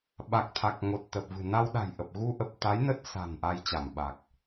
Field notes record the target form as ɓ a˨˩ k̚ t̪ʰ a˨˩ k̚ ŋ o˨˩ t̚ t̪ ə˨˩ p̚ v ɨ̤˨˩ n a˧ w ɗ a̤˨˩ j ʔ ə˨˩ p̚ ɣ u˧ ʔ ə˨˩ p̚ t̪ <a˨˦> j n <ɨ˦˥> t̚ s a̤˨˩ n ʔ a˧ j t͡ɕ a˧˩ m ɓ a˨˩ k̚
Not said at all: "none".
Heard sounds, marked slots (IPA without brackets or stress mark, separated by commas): a˨˦, ə˦˥